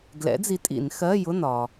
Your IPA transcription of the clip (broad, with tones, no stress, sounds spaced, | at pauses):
ɡ l ɛ̰˨˥ d͡z i˨˥ tʼ ḭ˧˩˧ n x ɜ˧˥˧ j ʊ˧˥˧ n ɒ˩